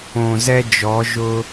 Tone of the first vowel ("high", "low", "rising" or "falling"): low